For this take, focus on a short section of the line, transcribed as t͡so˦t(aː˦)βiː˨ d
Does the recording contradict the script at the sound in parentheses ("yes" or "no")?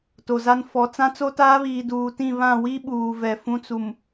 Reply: no